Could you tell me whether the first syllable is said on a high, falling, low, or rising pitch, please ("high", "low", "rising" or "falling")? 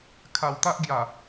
low